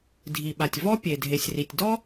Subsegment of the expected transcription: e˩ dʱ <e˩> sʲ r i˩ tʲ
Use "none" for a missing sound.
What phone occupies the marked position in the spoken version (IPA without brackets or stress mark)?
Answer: e˩